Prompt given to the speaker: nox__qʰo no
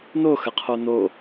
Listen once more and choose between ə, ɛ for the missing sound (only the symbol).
ə